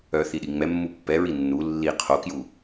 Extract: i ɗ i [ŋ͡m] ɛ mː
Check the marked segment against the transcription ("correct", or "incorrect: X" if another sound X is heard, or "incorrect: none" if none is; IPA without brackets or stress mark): correct